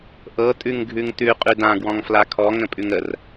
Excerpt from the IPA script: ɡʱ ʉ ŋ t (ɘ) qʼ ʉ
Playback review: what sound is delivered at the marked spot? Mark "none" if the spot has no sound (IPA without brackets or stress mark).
ʉ